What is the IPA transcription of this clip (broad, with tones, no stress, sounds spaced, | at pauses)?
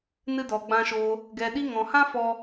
n ɨ˧ d ɔ˨ ɡ͡b ã˧ ʃ oː˧ | ɡ ɛ˨ ɗ i˧ ŋ ɔ̃˨ h ã˦ f ɔ˦